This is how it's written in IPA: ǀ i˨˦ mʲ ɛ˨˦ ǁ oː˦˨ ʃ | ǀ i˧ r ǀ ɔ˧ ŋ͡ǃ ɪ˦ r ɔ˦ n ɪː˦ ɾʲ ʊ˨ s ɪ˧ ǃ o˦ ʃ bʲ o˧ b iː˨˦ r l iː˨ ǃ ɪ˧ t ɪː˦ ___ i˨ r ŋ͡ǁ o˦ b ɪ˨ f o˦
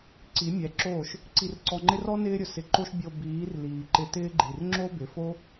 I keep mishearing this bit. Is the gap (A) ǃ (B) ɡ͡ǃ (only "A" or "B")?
B